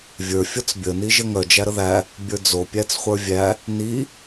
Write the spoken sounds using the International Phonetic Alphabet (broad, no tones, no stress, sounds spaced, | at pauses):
vʲ ə˞ fʲ ɔ t͡s bʲ ə n i ʒ ɘ ŋ œ d͡ʒ æ ɾ ə ð æ | bʲ ə˞ d͡z o pʲ æ t͡s χʷ ə˞ vʲ æ | n i